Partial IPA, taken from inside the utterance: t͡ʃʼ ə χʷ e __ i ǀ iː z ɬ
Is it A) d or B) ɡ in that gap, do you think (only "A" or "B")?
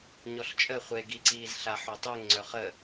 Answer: B